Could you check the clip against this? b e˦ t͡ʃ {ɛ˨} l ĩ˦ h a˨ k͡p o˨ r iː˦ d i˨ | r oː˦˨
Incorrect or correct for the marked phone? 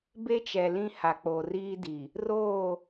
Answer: correct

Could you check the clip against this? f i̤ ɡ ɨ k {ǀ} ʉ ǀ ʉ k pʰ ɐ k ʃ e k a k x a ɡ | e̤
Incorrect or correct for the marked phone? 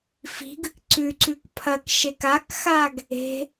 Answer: correct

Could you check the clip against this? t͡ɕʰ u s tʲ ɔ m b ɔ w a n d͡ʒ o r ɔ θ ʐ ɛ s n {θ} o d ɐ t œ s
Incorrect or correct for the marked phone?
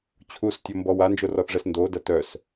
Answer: incorrect: d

